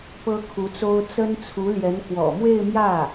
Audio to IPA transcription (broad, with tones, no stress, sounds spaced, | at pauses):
p ɤ˥ kʰ u˧˥ t͡s o˥ ʊ̯ t͡s ə˥ n t͡sʰ u˧˥ l j ɛ˧˥ n k w ɔ̰˨˩ m w e˥˧ ɪ̯ m j ä˥˩